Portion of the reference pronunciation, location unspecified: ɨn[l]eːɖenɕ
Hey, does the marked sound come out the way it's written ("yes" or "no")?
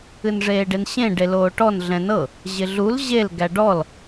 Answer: no